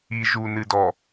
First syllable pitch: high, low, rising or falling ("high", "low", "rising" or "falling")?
low